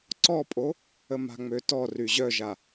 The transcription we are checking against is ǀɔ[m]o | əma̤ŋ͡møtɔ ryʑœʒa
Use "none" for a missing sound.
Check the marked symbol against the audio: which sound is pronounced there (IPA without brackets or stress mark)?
pʼ